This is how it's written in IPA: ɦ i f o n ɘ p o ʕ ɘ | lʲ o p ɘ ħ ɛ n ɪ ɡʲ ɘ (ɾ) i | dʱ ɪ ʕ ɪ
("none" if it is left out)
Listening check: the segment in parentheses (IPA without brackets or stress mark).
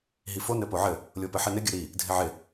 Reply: ɾ